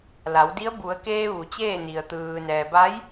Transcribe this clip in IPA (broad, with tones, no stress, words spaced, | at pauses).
la˩˧wdi˧˥ə̯ bu˩˧ə̯keː˧ ʋu˩˧ t͡ɕeː˥˨ni˩ə̯ t̪ɯː˩ nɛː˩ba˧˥j